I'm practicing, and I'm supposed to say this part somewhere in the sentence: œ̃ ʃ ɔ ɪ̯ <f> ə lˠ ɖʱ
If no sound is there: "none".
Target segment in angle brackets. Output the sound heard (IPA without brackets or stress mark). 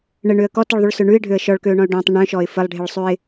f